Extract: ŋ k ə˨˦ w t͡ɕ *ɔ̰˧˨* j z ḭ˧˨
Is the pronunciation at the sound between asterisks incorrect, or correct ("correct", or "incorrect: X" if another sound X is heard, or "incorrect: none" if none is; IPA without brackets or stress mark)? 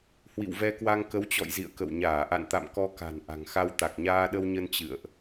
correct